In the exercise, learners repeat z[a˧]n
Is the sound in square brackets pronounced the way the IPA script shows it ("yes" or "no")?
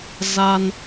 yes